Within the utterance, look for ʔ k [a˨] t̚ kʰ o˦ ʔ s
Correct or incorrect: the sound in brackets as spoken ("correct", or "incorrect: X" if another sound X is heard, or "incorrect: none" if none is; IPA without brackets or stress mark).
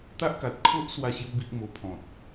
correct